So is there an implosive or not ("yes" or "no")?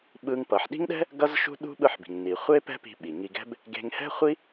yes